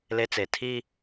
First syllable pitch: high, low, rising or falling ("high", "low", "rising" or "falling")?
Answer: high